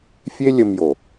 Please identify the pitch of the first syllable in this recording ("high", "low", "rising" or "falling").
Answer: high